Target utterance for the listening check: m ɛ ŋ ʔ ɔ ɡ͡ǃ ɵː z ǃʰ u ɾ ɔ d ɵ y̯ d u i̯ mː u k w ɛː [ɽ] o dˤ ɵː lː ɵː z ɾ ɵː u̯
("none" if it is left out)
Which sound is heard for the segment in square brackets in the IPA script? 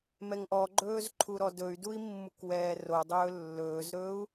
r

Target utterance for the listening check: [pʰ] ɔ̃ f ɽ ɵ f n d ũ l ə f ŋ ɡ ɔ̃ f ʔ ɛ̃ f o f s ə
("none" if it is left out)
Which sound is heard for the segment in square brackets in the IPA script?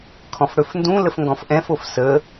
kʰ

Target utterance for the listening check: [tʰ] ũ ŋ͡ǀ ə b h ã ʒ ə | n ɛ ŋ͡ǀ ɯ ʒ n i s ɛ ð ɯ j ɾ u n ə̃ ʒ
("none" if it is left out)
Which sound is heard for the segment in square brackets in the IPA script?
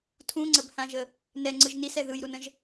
tʰ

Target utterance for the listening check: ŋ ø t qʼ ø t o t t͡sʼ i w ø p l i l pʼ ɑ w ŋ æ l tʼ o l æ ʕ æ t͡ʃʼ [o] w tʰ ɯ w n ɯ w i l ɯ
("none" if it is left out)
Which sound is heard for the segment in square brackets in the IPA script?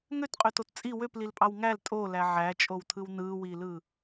o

